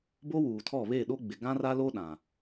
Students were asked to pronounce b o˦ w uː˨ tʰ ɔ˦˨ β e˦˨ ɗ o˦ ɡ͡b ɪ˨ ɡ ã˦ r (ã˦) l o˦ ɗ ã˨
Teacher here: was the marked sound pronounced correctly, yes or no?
no